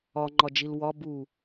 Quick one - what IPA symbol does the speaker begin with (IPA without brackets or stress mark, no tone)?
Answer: ɒ